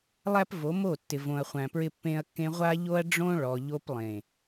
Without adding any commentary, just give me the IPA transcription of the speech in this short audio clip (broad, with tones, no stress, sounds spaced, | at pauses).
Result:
lˠ æ˦ p v o˨˦ m o˦˨ tː ɪ˨ v õ˨ ɐ̯ χʷ æ̃˨ p ɹ ɪ˧ pː ẽ˧ ɐ̯ kː ẽ˧ ʁʷ a˦ ʎ o˦ ɐ̯ ɖ͡ʐ õ˦ ɭ ɔ˨ ʎ o˧ p lˠ ẽ˨